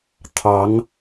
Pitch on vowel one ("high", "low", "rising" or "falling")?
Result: rising